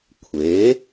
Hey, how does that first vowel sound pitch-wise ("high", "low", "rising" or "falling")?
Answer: rising